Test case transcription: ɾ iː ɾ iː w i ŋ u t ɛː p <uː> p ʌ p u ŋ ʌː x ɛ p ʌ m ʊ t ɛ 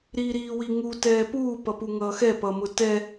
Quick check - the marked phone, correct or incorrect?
correct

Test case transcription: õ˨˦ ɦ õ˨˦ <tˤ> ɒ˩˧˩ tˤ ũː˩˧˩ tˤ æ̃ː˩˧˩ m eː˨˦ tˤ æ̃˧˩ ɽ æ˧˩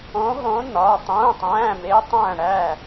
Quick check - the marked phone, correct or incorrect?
incorrect: n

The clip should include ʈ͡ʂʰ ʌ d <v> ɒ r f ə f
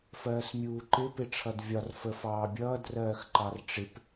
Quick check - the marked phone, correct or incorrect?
incorrect: vʲ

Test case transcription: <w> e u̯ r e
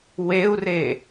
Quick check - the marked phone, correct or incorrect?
correct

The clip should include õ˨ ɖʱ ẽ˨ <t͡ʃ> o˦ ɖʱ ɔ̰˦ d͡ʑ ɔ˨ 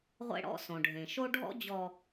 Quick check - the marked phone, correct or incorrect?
incorrect: ʃ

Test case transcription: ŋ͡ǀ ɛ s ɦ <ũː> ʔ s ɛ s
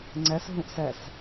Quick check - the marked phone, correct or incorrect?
incorrect: ũ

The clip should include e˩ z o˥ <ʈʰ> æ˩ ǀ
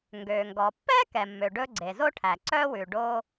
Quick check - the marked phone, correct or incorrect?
correct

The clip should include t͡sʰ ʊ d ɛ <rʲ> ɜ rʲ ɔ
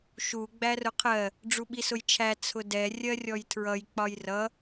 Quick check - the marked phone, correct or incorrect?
correct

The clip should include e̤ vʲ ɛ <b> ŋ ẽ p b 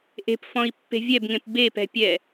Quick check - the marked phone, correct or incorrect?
correct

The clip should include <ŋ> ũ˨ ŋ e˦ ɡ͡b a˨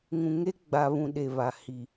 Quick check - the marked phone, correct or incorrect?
correct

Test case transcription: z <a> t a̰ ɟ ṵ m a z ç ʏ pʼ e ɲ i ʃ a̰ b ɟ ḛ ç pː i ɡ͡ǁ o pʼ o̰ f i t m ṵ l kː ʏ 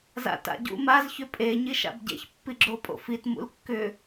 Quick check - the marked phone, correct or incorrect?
incorrect: a̰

